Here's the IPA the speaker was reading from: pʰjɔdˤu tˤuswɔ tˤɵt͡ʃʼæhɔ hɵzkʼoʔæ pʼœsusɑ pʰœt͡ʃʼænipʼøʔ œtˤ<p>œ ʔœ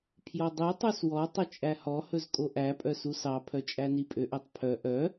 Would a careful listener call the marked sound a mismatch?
yes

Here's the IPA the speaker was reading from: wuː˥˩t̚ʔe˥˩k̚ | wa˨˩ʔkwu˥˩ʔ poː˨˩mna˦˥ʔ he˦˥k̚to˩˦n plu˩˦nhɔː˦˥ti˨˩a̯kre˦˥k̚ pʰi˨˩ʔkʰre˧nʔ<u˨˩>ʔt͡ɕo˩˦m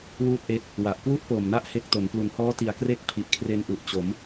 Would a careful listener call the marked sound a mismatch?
no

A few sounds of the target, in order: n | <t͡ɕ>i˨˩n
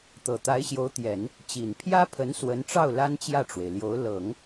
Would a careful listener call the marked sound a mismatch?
no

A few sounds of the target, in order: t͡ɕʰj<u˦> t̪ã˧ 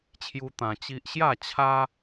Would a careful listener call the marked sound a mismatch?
no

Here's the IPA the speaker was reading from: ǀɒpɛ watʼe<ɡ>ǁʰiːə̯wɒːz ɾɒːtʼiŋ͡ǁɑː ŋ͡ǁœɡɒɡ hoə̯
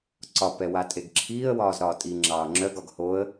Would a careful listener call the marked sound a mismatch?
no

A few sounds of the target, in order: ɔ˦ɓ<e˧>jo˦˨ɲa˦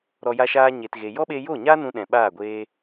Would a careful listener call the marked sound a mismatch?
no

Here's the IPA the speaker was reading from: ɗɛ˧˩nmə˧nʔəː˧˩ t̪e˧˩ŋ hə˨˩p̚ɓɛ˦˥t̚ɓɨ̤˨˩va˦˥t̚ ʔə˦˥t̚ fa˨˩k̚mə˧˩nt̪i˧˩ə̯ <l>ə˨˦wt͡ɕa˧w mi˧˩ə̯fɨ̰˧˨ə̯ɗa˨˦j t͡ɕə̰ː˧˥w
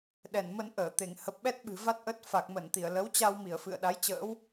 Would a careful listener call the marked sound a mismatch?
no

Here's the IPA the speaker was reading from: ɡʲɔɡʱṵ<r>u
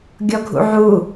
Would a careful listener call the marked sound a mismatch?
yes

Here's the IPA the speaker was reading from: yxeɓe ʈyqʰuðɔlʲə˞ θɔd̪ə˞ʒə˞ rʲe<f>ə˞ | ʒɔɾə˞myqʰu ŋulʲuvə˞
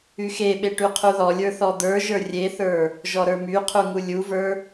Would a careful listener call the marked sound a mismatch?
yes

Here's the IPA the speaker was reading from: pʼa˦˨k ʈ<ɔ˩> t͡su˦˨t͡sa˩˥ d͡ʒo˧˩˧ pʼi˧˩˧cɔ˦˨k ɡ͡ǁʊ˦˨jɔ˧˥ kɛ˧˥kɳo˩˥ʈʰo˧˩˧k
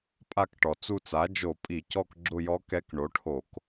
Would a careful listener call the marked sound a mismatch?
no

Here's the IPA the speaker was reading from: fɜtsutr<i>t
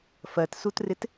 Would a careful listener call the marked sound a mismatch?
yes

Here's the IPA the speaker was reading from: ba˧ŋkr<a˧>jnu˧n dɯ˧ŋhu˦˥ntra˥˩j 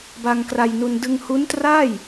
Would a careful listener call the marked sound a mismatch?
no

